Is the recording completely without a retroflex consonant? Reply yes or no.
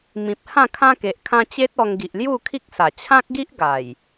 yes